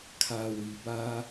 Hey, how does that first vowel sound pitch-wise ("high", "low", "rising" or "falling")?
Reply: low